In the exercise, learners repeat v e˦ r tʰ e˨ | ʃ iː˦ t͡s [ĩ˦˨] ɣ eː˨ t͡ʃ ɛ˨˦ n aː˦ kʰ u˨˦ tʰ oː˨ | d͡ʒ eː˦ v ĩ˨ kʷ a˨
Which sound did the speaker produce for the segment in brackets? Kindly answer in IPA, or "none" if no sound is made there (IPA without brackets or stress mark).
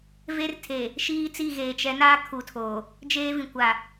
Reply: i˦˨